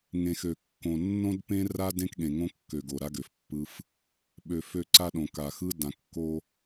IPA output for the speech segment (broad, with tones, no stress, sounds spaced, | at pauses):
ŋ ẽ˨ x ø˨ kː õ˨ nː õ˦ d p ẽ˦ r a˦ d ẽ˦ k ɠ ẽ˨ ŋ õ˦ kː ø˨ ɡ o˨ ɾ a˦ ɡ ø˨ f pː ɯ˦ f | ɓ ø˨ f ø˦˨ ǀ a˦ ɗ õ˨ k a˨ x ɯ˦ d ã˨ kː o˦